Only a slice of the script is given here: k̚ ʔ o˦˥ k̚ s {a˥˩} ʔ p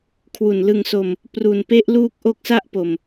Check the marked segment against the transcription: correct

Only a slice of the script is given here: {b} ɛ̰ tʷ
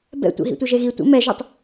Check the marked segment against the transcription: correct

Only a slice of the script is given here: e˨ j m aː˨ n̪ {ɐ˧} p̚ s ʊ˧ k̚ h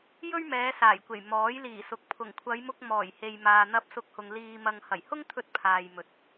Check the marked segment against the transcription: correct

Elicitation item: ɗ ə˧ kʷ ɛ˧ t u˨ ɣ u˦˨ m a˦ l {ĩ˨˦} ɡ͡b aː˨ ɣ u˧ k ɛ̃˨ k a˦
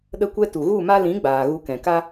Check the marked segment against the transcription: correct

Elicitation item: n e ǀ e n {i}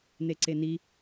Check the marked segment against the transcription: correct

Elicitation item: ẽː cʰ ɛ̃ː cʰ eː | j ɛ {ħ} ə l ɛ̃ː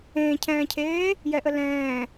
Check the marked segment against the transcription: incorrect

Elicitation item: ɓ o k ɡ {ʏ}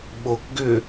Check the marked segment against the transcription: correct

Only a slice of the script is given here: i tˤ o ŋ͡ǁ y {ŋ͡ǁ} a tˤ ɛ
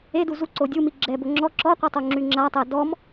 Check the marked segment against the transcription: correct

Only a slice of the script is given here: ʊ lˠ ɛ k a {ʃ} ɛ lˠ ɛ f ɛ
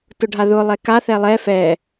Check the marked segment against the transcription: incorrect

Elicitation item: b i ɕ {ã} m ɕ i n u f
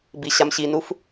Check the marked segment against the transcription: incorrect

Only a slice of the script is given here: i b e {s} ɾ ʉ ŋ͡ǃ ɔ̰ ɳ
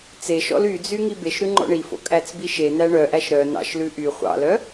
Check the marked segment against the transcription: incorrect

